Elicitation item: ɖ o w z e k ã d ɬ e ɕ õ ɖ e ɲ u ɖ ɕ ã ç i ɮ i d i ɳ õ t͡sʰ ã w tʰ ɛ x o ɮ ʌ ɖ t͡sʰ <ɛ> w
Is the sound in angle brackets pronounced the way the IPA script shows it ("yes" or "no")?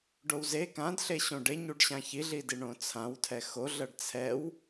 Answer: yes